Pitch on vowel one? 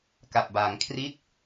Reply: low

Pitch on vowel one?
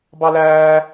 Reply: high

